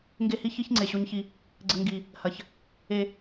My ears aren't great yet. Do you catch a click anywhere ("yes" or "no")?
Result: yes